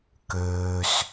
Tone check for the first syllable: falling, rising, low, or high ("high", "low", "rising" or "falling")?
low